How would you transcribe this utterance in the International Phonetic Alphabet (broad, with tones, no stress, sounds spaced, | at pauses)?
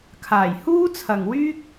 kʰ aː˨˩ j h uː˥ t͡sʰ ɐ˨ ŋ w yː˥ k̚